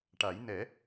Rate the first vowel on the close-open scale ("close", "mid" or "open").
open